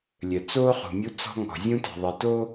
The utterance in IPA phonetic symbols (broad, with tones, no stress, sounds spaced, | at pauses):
lʲ œ˨ t͡s oː˦ χ ṳ˨ mʲ u˦ t͡s ɔ̤˦ ŋ ɔ̤˨ zʲ ũ˦ t ɛ̤˨ ðˤ ɛ˨ t o˦